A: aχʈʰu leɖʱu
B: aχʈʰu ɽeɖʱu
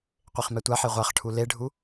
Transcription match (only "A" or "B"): A